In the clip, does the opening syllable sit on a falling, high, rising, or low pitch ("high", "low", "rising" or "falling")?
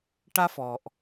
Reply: high